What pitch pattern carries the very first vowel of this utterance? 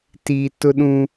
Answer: low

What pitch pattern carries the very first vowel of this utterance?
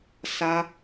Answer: high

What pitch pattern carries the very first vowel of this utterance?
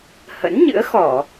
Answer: rising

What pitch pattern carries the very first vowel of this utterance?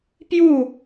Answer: falling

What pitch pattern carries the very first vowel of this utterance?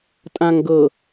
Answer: low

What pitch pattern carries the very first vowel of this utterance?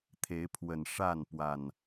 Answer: rising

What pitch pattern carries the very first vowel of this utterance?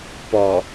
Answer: low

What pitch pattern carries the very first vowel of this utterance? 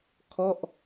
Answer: falling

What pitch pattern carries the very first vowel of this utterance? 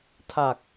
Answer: low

